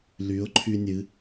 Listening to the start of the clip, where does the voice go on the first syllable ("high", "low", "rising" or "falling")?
rising